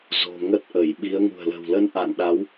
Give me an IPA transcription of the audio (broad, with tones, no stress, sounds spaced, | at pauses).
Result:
z o̤˨˩ ŋ ə˦˥ t̚ ʔ ə˧˩ j ɓ i˨˦ ə̯ ŋ ṳ˨˩ ə̯ l ə̤˨˩ w l ə˧ n ʔ a̰˧˨ n ɗ a˨˦ w